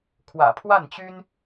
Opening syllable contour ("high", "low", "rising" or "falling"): low